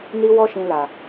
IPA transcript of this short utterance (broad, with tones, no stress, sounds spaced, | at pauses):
n i˧ w ɔ˧ ʃ ĩ˨ l a˨